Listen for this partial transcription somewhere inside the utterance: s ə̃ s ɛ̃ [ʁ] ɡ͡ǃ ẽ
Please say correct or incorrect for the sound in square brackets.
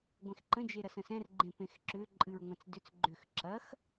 incorrect